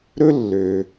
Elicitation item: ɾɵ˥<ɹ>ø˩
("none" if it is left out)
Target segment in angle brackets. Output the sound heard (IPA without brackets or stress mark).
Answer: lː